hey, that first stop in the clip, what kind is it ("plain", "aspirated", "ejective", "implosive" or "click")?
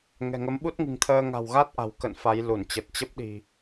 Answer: implosive